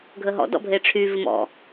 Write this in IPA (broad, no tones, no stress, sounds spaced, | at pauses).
ɡʱ ə ɦ ɔ̰ d ɔ̰ bʱ e ʈ͡ʂʰ y v ɪ m ɔ̰